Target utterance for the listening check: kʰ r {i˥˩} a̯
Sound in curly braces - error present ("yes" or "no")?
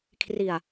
yes